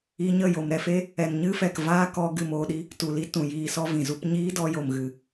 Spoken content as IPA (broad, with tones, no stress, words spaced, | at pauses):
i˧ɲə˦˨ jo˨mɾɛ˧fe˦ | ɛ˨nɲɨ˦fɛ˨k vaː˦kɔ˧ ɡɨ˧moː˧ɗi˦ | tu˨li˧ tũ˨jiː˧sɔ˦ vĩ˨zu˧p ɲiː˦dɔ˧jo˨mɣɨ˨